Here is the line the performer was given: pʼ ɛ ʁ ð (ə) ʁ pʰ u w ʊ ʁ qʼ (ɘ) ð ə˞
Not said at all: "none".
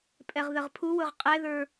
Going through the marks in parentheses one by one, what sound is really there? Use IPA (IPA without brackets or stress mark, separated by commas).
ə, ɛ